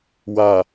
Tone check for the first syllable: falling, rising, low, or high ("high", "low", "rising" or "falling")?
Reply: low